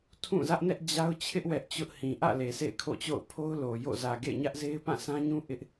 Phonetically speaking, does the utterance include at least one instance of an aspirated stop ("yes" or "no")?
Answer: yes